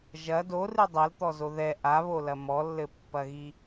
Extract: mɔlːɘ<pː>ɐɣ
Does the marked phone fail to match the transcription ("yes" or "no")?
no